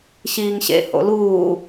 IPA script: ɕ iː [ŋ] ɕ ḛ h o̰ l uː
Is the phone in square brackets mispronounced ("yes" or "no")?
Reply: no